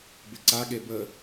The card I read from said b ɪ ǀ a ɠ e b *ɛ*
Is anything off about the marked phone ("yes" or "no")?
yes